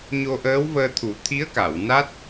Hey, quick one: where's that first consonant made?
palate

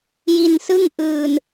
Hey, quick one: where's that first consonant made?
palate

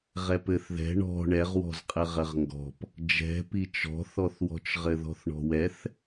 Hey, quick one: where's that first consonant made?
uvula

